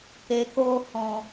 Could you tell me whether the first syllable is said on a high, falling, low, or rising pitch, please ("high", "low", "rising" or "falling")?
low